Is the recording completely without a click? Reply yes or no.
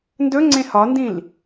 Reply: no